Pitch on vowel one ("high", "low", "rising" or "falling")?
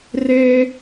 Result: high